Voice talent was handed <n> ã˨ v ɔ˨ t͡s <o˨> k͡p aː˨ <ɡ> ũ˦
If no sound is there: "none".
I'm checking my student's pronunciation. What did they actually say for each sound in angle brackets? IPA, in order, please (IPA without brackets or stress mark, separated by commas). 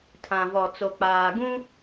tʰ, o˨, ɡ